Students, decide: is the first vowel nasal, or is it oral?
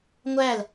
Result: oral